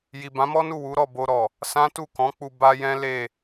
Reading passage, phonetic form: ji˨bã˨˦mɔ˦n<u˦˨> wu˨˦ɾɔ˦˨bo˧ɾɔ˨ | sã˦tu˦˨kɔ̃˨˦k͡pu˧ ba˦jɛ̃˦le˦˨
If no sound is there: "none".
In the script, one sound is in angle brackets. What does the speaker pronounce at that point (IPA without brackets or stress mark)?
u˦˨